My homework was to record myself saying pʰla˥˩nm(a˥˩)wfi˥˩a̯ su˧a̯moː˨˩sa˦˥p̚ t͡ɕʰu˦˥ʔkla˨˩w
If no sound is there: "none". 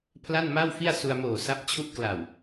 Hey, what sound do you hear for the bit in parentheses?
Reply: a˥˩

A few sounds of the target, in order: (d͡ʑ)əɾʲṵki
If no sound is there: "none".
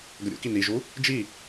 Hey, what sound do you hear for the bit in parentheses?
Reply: ɡ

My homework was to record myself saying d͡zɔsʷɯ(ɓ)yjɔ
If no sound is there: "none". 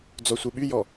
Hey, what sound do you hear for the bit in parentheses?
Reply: ɓ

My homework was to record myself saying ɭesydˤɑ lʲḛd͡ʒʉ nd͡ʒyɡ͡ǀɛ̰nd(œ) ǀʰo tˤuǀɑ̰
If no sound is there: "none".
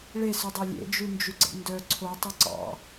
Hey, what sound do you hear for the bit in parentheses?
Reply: œ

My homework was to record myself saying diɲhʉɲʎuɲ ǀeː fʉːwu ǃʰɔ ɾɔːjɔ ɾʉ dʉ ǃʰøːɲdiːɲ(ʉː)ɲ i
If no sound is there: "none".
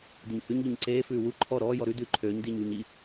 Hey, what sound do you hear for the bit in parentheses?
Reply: uː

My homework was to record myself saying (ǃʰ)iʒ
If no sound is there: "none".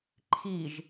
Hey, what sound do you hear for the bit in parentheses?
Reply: ǃʰ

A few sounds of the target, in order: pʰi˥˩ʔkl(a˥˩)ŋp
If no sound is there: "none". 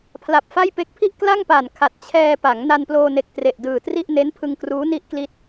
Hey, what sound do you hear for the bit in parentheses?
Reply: a˥˩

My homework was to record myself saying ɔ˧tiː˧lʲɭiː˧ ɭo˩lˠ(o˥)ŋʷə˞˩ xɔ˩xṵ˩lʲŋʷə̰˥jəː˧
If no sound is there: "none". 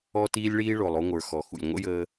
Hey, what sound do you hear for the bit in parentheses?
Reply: o˧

